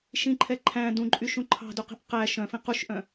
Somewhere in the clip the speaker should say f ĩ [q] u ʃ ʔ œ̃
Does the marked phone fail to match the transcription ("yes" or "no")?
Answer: no